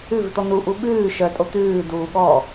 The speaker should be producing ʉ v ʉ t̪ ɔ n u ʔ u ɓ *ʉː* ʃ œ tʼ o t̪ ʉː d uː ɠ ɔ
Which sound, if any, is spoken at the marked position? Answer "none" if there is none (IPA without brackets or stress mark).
ʉː